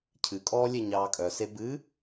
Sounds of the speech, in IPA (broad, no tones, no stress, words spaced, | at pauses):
cʰɨkʼɔː lʲeɲɑːkʼœse bɨ